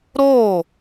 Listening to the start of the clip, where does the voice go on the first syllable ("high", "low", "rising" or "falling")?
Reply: falling